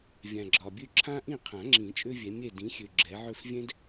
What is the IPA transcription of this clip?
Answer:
vʲ ã˨ ɡ͡ǁ ɒ˨ bʲ ø˥˨ ǁʰ ã˥ ʔ ĩ˥˨ qʰ ã˨˩˦ ŋ͡ǁ ĩ˨˩˦ t͡ʃʼ ø˥ vʲ ɛ˨˦ mʲ ɛ˥˨ d ĩ˨˦ xʲ ø˨ ɡ͡ǁ ɛ˨˦ ʕ ø˥˨ f vʲ ɛ̃˥ d

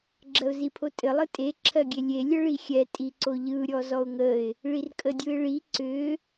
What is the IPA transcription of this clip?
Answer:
ɡ͡ǁ ɜ ʊ̯ z i pʰ o tʼ ɘ lˠ ɯ tʼ e ǁʰ ɜ ɡʲ e lʲ e lʲ ə ɭ i xʲ ɛ tʼ i ǀ o ʎ ɯ ɾʲ ɔ z ɔ ʊ̯ ŋ ə ɪ̯ | ɭ i r kʼ ə dʲ ɯ ɪ̯ ɭ i ǀ ʏ

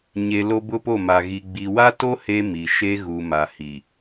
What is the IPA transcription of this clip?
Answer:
ɲ e˨ l o˦ b ʊ˦ p o˦˨ m a˨ ɣ i˨ ɡ͡b i˨ w a˦ t o˦ h e˦ m i˨ ʃ e˦ ɣ u˨ m a˨ h i˨

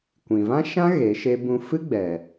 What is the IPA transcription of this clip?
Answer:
kʷ ĩ˨ v ã˦ ʃ ã˦ ɣ e˨˦ ʃ e˦ b ũ˦ f ɨ˦ ɡ͡b ɛ˨

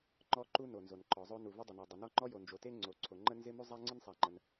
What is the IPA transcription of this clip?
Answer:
ŋ͡ǃ ɔ˥ ǃ u˥ n o˩ n z o˩ n ǃ ɔ˩ zˤ o˥ n u˩ v ɪ˥ dˤ ə˩ n a˩ dˤ ɪ˩ n ɔ˥ ŋ͡ǃ ɔ˥ j o˩ n d͡ʒ o˩ t e˥ ŋ͡ǀ o˩ ǀʰ o˩ ŋ͡ǃ ə˥ n z ɪ˥ m u˥ zˤ a˥ ŋ͡ǀ ɪ˥ n sˤ a˩ ŋ͡ǃ ə˩ n

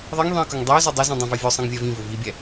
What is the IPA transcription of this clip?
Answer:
ðˤ ɛ ŋ ðˤ ĩ ə̯ k ɵ ŋ dˤ ɛ ʊ̯ z o dˤ ɛ z ĩ dˤ ĩ v ɛ vʲ o sˤ ĩ ŋ vʲ ɛ v ĩ v ɵ v i bʲ ɛ

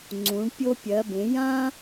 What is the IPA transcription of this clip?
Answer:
ŋ͡ǀ ũ˩˧ ɳ pʲ o˧ pʲ ɜ˩˧ b ẽ˩˧ j ã˥

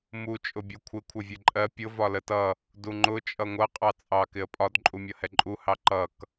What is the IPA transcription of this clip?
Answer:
m u t͡ʃʼ ʊ bʲ u kʷʰ ɪ kʷʰ ʌ vʲ ɛ ǃʼ ɜ pʲ ʊ v ɒ l ə t ʌ | d u ŋ͡ǃ ʊ t͡ʃʼ ʌ ŋʷ ʌ qʼ ɑ t͡sʼ ɑ k ɪ ə̯ pʼ ɒ d ǃʼ u mʲ ʌ h ɛ ǃʼ u h ɑ ǃ ʌ k

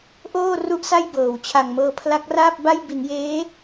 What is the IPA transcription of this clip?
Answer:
ʔ oː˥˩ r u˥˩ ʔ s a˥˩ j b ɤː˩˦ w t͡ɕʰ a˨˩ ŋ m ɤː˧ pʰ l a˦˥ k̚ r aː˥˩ p̚ b a˥˩ j b i˩˦ n j eː˦˥

